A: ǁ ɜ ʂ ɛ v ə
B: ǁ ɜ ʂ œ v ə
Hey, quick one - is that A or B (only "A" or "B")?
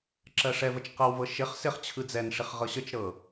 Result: A